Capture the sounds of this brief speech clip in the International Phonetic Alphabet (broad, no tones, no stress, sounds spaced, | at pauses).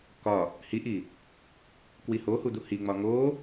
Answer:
k ɒ | h i ʔ i | k w i h o h u d̪ u h i ŋ͡m ɒ ŋ o